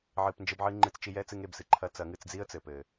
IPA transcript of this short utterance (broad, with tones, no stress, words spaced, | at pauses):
ʕɨ˨pnd͡ʒɘ˧bʕɨ˧ ŋ͡ǃɨ˧t͡st͡ʃi˧jɛ˦ t͡sɨ˦ŋe˦˨bsɨ˨ǃʰɐ˦ t͡sɐ˨˦ŋɨ˧t͡sd͡zi˦ə̯ t͡sɘ˨ pɘ˨